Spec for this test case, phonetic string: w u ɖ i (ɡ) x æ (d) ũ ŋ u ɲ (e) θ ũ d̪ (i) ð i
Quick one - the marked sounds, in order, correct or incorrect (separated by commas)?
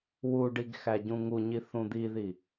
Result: correct, incorrect, incorrect, correct